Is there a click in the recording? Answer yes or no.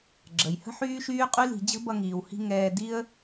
yes